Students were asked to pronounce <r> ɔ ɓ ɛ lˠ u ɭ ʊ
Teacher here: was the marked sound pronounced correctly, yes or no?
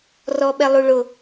yes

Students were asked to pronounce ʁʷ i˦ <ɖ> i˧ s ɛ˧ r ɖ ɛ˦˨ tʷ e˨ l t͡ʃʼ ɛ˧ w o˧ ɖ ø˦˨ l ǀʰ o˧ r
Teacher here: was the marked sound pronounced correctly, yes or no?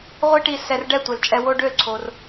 no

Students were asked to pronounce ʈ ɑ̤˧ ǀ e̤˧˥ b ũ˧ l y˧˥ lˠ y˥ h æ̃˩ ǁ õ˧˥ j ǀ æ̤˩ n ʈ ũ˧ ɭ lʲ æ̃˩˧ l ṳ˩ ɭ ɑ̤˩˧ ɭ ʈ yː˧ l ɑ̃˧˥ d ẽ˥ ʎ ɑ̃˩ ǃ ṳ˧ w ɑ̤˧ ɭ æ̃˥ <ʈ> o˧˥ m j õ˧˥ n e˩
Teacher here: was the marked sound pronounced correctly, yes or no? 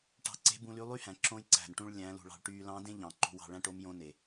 yes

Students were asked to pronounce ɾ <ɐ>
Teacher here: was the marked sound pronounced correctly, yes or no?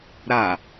no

